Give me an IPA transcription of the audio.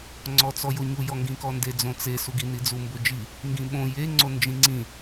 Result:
ŋ͡ǀ ɔ t͡s ɔ j o ɲ u j ɔ ŋ ɡ ĩ k ɔ n d e d͡z õ t͡s e s u ɡ i n i d͡z u m b o d͡ʒ i | ŋ ɡ ĩ ɓ õ j e ŋ͡ǀ o n d͡ʒ ĩ ŋ͡ǀ ĩ

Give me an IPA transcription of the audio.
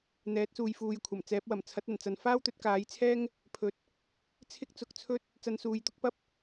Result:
n̪ ɛː˨˥ t̚ s uː˨ j f uː˨ j kʷʰ ɐ˨˩ m t͡s ɛː˨˥ p̚ w ɐ˨˩ m t͡sʰ ɐ˨˥ t̚ ɐ˨˩ n t͡s ɐ˨ n f aː˥ w t̪ ɵ˨˥ t̚ k aː˨˥ j t͡sʰ ɛː˥ ŋ | pʰ ɵ˨ t̚ | t͡sʰ ɪ˥ k̚ t͡s ʊ˨˥ k̚ t͡sʰ ɵ˥ t̚ | t͡s ɐ˧ n s uː˨˧ j t̪ ʊ˥ k̚ p ɐ˥ p̚

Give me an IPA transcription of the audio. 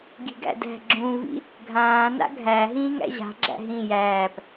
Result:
ɡ i̤ ɡ æ̰ d æ̤ ɡ͡ǁ ũ v ḭ | ɡʱ ãː n a̰ ɡʱ æ ɦ ĩː ŋ æ̰ ʑ a̤ ɡ͡ǁ æ̰ ɦ ĩ j æː p

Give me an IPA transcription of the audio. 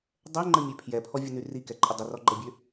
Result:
dˤ ɛ ŋ͡ǃ ə mʲ ø pʰ j ɛ pʰ ɔ vʲ ə n y r i k ɛ ǃʼ ə dˤ ə r ɔ ɡ͡ǃ ə bʲ ø

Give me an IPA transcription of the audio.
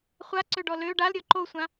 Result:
χʷ a ǀ ø ɖ ɔ l ø ɖ a l ɾʲ ɔ ǃ o sʷ ã

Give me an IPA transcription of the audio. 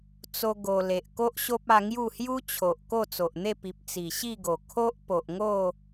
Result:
t͡s o˦ ɡ o˧ l e˨ ʔ k o˦ ʔ ɕ o˦ p̚ a˧ ŋ j u˥˧ h j u˦ t͡ɕʰ o˨ ʔ k o˥˧ t͡s o˨ ʔ n̪ e˥˧ p i˨ p̚ t͡s i˨˩ ɕ i˥˧ ɡ o˨˩ kʰ o˦ ʔ p o˨ ʔ ŋ o˥˧

